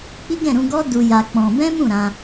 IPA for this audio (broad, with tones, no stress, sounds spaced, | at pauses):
k͡p i˦ ɡ ɛ̃˦˨ ɾ ũ˧ ɡ ɔ˦ d u˧ j a˧ k͡p ɔ̃˧ b ɛ̃˦ m ũ˦˨ ɾ ã˧